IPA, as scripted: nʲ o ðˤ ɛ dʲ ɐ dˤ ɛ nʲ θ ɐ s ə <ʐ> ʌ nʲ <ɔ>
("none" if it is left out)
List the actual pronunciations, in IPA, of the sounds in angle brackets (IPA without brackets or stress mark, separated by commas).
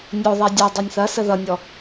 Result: ð, ɔ